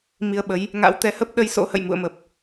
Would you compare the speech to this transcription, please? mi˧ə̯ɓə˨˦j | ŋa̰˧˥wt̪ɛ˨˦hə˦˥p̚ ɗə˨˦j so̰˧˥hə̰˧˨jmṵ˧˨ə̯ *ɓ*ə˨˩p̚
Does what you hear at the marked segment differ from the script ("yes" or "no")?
yes